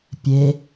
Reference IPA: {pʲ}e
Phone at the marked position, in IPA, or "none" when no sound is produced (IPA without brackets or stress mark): pʲ